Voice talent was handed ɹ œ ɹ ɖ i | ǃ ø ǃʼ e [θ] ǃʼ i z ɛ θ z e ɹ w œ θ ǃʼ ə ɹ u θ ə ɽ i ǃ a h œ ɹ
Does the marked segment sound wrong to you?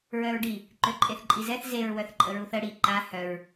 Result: no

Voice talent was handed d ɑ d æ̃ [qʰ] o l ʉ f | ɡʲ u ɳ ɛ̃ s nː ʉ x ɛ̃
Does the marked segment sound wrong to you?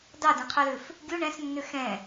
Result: no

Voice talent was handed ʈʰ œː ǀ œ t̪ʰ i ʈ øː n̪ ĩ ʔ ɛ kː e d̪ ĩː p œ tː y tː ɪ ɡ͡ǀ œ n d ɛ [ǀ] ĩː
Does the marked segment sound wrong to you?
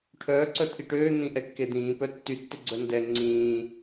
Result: yes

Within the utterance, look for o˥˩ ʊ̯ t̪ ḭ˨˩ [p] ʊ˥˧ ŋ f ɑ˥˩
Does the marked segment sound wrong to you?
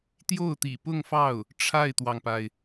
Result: no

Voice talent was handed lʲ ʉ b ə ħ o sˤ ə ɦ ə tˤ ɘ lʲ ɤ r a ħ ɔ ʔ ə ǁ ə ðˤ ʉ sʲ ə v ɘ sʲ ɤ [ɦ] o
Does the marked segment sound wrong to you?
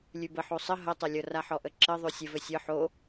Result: yes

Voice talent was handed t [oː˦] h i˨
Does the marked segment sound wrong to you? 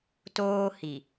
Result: no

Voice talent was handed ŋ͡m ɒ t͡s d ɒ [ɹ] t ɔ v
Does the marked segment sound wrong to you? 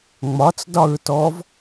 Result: no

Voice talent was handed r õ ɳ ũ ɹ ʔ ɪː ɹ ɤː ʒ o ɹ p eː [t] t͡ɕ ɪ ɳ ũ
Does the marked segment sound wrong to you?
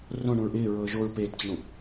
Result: no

